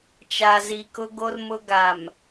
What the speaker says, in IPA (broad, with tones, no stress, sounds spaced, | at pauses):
t͡ʃ a˨ z i˨ k ʊ˦ ɡ o˦ r m ʊ˦ ɡ a˨ m